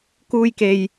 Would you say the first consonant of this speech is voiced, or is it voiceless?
voiceless